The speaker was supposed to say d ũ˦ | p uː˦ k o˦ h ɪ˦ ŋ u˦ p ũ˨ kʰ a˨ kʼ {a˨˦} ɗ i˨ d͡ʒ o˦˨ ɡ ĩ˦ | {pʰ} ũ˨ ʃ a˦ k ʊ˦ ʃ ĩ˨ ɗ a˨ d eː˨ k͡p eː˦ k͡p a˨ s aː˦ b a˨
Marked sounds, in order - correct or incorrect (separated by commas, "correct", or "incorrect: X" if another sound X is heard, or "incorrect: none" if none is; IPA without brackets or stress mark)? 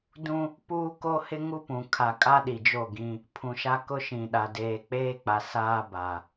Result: incorrect: a˦, correct